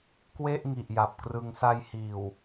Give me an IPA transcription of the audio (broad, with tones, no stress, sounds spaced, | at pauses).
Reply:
k w e˥˩ ʔ ŋ i˨˩ ʔ j a˨˩ p̚ k r ɯ˧ ŋ s a˧ j h iː˨˩ w